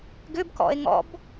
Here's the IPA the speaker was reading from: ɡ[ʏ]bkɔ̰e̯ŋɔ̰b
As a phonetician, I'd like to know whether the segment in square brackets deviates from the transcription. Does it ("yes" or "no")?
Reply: no